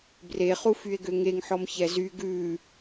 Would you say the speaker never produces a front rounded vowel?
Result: no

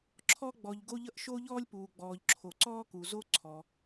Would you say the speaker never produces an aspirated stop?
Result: no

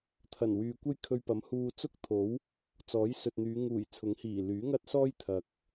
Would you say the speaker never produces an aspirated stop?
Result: no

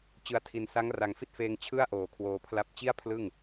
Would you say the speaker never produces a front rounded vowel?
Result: yes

